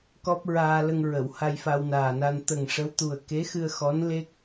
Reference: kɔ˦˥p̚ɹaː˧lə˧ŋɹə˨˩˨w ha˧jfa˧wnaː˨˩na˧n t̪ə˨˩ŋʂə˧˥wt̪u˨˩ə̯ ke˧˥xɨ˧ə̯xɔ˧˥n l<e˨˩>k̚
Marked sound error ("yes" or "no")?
yes